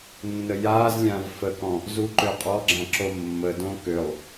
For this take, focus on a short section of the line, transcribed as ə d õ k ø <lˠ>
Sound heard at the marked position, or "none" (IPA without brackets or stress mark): lˠ